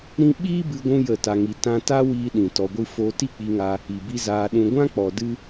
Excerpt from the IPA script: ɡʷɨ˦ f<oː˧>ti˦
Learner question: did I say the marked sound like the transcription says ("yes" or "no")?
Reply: yes